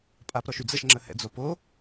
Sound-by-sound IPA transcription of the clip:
pʼ a p ɾ ɔ ʃ y d͡z ə ʃ ŋ͡ǁ ə h ɛ̰ d͡z o p o

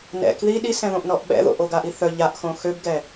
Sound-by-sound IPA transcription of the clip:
n ɛ̰ k ð i ɗ i s ɛ̃ ð õ ʔ n ɔ ʔ ɓ ɛ̰ ð o̰ ʔ o ɡ a ʔ i θ œ ʎ a ʔ x õ x ø b ɡ ɛ

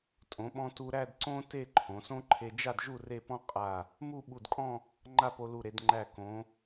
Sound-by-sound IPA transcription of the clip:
tʼ õ˩˧ ɓ ɔ̃˧ t u˧ ɾ æ˥˧ d ǀ õ˥ t e˥˧ ǃʰ õ˩˧ s õ˥ ǃʰ e˧ d͡ʒ a˥˧ d ʒ u˥˧ r e˥˧ p ɔ̃˥ qʼ a˧˩ | m u˥˧ ɓ u˧˩ d kʼ ɔ̃˥˧ | ŋ͡ǃ a˥˧ p o˧ l u˧˩ ɾ e˩˧ d ŋ͡ǃ æ˧˩ k õ˩˧

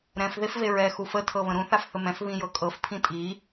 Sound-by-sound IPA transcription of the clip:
ɾ ɛ̃ f ð e f v e ɹ ɛ x u f ə tʰ ɤ β ə̃ ɾ ũ θ a f θ ə m ɛ̃ f β ĩ j ɤ kʼ ɤ f pʰ ĩ tʼ i

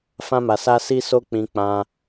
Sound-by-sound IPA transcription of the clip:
f ã˧ m a˨ s a˧ s i˦ s o˦ k͡p ĩ˧ k͡p ã˧

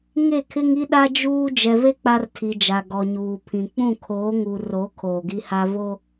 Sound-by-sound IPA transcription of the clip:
ŋ e˦˨ kʰ ɪ˦ ŋ i˦ ɗ a˦ d͡ʒ uː˦ d͡ʒ ɛ˨ v e˦ k͡p a˦ r tʰ i˨ d͡ʒ a˨ ɡ ɔ˨ ɲ uː˨ pʰ ĩ˨ k͡p ũ˦˨ kʰ oː˨˦ ŋ u˨ r o˨˦ kʰ oː˨ ɡ i˦ h a˦ v o˦

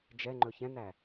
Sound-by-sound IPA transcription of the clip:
d͡ʒ ɛ ŋ͡ǃ ɵ ç ɛ̃ n æ

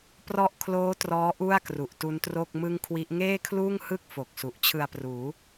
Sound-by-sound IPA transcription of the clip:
p r ɔ˥˩ ʔ kʰ l oː˦˥ t r ɔː˦˥ ʔ u˥˩ a̯ k r u˨˩ ʔ t u˦˥ n t r o˥˩ k̚ m ɯ˥˩ ŋ kʰ w i˦˥ ʔ ŋ eː˥˩ kʰ l uː˥˩ ŋ h ɯ˥˩ k̚ f o˨˩ k̚ s u˨˩ ʔ t͡ɕʰ ɯ˧ a̯ p r uː˩˦

